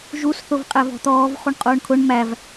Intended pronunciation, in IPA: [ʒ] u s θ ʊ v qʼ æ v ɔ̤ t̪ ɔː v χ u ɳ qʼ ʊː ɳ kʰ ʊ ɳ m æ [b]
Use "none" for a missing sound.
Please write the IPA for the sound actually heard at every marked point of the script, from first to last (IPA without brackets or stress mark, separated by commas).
ʒ, v